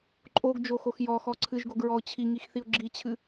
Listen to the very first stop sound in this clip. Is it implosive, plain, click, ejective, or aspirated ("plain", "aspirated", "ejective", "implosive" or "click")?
click